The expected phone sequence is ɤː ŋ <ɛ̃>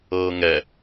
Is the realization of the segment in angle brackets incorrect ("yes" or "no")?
yes